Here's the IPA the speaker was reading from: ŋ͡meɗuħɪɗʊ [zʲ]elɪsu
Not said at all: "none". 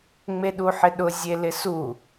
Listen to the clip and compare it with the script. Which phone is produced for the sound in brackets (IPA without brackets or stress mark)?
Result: zʲ